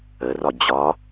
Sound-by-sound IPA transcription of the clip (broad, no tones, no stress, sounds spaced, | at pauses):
ə r ɒ d͡ʑ ɒ